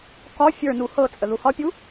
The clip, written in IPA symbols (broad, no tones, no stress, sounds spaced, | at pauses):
k ɒ fʲ ə˞ n u h ɤ t͡sʼ ə ð u h ɒ pʲ u